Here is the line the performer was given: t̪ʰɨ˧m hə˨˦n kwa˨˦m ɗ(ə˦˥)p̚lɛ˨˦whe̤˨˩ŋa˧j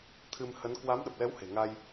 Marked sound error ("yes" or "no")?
yes